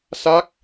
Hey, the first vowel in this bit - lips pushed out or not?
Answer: no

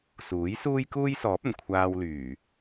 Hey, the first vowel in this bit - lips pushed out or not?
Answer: yes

